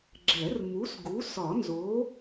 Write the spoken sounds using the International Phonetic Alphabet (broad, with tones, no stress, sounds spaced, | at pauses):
ɡ͡ǁ ɛ˨˩˦ r m u˨˥ s ɡ u˨˥ s ɒ˨˩˦ n z o˨˥